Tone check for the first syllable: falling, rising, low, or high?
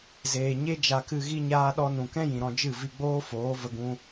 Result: low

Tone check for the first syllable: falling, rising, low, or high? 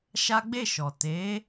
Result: high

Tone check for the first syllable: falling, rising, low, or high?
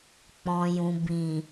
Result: low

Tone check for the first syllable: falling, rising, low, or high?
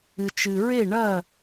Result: low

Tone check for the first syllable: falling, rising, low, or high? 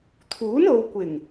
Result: rising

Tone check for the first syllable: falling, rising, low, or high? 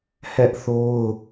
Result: high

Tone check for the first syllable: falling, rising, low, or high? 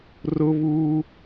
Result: high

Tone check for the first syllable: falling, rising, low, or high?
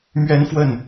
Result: high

